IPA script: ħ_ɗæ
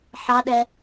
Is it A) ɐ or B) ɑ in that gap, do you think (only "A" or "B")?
B